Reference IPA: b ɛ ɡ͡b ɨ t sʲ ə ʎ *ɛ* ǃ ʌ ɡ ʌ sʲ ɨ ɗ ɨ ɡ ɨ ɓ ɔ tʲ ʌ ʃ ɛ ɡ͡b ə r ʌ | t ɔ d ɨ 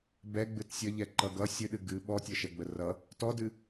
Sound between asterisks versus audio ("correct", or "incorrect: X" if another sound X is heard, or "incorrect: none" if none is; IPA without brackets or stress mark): correct